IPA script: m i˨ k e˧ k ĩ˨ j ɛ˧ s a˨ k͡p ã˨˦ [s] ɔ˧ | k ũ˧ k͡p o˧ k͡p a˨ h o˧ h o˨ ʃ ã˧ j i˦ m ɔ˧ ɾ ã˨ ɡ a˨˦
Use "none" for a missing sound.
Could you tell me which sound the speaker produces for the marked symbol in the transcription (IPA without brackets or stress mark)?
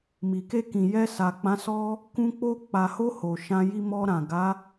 s